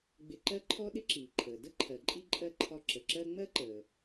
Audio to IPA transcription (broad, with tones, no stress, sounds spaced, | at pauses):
ɡ͡b ɪ˧ ǃ ɜ˥ ǃʰ ɔ˥ ɗ ɪ˥ ǁ iː˩ ǃʰ əː˩ d ə˥ ǃʰ ɜ˩ ǃʼ i˧ ǃʼ ɜ˧ ǃʰ ɒ˧ ǁ ə˩ ǁ ɜ˥ ŋ͡m ɜ˥ ǃ əː˩